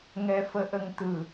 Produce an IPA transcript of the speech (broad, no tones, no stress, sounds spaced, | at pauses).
ŋ ɛ f ə ʔ ə ŋ t̪ ɯ